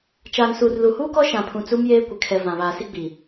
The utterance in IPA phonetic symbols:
t͡ʃ aː˨ n s u˨ r l u˨ h uː˦ k ɔ˦ ʃ ã˨ pʰ ũ˨ t͡s u˦ m j eː˦ kʷ ɪ˨ kʰ ɛ˨ v ã˨ β aː˨ s i˦ ɡ͡b i˨

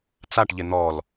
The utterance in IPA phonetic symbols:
t͡s a ʈ ʎ ɪ n̪ ɔ l

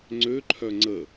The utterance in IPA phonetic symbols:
ŋ͡ǀ ø ǃʰ œ ŋ͡ǀ ə

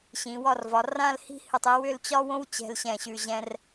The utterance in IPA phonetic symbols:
ɕ ĩ˩˧ w ɒ˥˧ r v ɒ˩˧ r ã˥˧ l h i̤˥ h ɨ˧˩ tˤ i˧ w ʏ˥˧ l t͡ɕ ɒ˥ w õ˥ w t͡ɕ ɛ̤˧ l ɕ ɛ̃˧˩ ɕ ʉ˧˩ ʑ ɛ̃˥ r

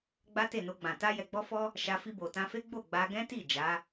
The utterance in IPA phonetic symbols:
ɡ͡b a˦ t e˦˨ n o˧ ɡ͡b ã˨ t a˧ j ɛ˨ ɡ͡b ɔ˧ f ɔ˧ | ʃ a˧ f i˧ b o˨ t ã˧ f e˦ ɡ͡b o˦˨ ɡ͡b a˧ ɡ ɛ̃˦ t i˦˨ d͡ʒ a˨˦

